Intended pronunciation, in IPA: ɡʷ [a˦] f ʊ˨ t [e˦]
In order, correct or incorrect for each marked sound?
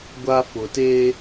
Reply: correct, correct

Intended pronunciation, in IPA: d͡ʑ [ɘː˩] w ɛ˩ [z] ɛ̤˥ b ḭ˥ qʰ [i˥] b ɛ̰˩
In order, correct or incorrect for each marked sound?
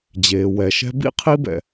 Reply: incorrect, incorrect, correct

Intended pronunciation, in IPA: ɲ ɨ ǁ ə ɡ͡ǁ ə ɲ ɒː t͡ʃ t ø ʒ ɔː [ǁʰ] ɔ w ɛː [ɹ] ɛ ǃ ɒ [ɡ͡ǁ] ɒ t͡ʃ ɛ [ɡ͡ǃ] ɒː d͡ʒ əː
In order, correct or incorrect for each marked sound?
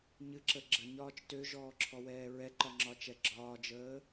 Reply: correct, correct, incorrect, incorrect

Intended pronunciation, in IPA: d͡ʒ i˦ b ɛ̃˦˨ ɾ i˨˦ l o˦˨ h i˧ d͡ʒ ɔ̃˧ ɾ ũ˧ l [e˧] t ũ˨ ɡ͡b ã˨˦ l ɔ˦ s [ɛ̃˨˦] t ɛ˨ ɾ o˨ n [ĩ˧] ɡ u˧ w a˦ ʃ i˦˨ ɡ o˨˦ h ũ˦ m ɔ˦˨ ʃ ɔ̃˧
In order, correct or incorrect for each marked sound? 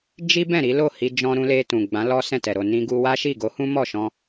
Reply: correct, incorrect, correct

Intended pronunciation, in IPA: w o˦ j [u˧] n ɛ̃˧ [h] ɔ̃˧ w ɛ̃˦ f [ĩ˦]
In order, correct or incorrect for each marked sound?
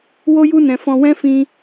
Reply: incorrect, incorrect, correct

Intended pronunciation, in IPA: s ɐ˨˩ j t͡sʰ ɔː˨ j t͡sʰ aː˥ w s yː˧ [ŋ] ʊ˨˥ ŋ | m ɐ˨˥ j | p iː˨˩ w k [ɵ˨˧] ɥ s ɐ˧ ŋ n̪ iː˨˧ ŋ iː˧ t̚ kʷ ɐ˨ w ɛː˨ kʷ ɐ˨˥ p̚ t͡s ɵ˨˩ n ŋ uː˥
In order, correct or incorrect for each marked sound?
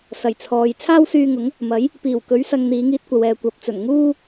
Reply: correct, correct

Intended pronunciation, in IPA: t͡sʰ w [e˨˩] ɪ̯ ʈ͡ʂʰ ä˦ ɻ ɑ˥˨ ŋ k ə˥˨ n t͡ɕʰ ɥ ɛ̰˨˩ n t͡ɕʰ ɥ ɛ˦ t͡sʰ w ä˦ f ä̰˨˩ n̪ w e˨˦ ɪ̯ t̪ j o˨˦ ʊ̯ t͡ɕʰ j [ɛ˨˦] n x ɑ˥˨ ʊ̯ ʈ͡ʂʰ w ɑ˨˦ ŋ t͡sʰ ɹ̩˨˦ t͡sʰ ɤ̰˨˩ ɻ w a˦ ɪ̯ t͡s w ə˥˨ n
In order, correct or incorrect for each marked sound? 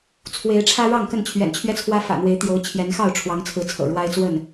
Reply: incorrect, correct

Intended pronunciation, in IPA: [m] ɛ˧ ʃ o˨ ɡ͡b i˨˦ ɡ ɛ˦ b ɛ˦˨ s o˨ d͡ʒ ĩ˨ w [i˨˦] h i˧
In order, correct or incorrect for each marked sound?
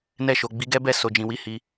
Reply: incorrect, correct

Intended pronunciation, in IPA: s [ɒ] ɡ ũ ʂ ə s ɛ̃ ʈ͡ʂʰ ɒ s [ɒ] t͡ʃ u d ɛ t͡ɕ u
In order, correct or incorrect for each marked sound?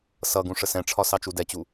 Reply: incorrect, incorrect

